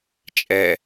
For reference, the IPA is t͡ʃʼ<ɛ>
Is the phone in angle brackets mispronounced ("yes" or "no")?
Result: no